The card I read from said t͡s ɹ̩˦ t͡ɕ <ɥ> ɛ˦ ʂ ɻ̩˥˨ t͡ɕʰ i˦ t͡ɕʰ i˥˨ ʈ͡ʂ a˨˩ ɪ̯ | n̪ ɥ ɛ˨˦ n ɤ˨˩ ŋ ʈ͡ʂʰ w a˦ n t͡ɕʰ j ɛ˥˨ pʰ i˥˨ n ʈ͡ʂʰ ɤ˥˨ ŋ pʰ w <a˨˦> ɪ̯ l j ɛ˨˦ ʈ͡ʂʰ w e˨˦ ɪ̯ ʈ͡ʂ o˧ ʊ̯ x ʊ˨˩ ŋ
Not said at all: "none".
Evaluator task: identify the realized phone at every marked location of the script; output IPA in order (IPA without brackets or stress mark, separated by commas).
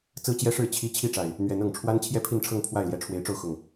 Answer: j, a˥˨